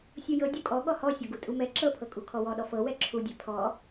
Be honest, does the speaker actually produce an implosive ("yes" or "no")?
yes